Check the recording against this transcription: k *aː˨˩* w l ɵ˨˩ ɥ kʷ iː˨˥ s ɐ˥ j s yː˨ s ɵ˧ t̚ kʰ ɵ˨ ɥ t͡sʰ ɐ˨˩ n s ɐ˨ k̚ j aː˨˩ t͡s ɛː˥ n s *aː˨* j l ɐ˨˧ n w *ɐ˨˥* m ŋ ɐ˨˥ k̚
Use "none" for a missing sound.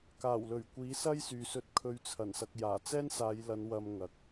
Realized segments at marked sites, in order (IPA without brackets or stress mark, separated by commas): aː˨˩, aː˨˧, ɐ˧